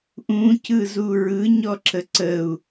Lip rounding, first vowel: rounded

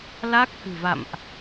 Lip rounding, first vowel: unrounded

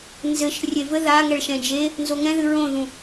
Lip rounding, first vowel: unrounded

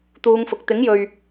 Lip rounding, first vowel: rounded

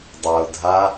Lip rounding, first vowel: unrounded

